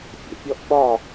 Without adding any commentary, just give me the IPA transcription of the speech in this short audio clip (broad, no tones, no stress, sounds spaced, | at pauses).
fʲ ḛ pʲ ɔ ʔ ɓ ɒ